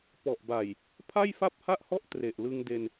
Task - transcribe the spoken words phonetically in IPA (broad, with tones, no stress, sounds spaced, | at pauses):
p ɔ˨˩ ʔ b a˨˩ j | pʰ a˥˩ j f a˥˩ p̚ h a˥˩ ʔ h ɔ˥˩ ʔ t r e˨˩ ʔ l ɯ˧ ŋ d e˧ n